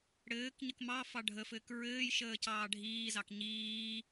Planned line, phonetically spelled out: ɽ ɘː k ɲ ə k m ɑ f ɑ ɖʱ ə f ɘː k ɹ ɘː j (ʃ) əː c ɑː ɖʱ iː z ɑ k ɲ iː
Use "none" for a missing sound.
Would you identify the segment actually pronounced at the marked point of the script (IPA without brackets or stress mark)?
ʃ